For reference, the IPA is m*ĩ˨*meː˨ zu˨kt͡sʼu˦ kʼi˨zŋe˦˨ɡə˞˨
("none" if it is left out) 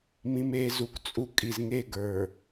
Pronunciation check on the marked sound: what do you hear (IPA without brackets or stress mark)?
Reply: ĩ˨